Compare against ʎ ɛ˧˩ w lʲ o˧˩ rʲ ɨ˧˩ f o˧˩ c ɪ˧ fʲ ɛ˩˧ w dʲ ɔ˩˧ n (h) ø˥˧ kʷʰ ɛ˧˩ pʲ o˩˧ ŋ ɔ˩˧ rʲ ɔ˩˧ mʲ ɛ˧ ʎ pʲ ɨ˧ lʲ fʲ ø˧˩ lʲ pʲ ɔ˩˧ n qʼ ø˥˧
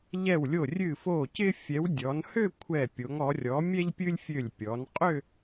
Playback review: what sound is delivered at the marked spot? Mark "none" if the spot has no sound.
h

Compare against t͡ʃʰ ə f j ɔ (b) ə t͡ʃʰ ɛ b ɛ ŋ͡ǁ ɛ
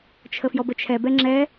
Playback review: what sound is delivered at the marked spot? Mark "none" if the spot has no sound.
b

